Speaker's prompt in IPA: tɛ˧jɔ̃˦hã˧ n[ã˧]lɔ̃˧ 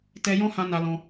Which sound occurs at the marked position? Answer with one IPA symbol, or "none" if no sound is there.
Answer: a˧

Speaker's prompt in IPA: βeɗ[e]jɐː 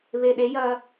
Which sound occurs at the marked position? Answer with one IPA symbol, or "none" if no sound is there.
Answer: e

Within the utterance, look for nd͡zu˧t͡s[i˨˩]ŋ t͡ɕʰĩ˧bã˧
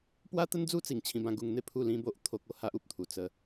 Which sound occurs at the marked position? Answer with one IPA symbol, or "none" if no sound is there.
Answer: i˨˩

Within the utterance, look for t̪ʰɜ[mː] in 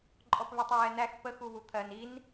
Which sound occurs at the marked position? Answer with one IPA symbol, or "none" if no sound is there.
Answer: n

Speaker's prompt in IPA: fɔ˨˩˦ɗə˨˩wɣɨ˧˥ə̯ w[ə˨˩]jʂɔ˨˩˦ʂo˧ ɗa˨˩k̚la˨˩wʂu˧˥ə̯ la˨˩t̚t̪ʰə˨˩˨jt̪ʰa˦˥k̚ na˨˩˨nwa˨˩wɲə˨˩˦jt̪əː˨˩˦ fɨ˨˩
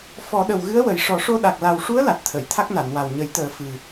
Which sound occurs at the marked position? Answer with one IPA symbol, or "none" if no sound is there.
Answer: ə˨˩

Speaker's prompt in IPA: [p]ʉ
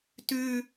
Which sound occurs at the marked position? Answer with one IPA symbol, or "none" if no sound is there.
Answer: t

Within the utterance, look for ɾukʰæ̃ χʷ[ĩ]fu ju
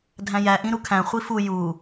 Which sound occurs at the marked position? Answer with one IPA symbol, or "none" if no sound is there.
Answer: i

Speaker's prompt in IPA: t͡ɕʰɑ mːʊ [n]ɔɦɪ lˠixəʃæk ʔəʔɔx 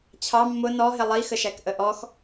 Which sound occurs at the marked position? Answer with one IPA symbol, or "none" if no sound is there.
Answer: n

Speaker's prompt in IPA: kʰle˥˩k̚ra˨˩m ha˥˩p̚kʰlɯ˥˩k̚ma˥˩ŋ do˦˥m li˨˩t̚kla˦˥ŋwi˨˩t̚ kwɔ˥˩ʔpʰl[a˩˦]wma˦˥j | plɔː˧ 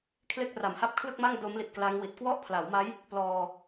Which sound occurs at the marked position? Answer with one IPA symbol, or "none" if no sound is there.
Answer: a˩˦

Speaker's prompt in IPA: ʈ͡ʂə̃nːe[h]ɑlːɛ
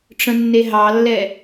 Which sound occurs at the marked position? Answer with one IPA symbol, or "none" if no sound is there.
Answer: ɦ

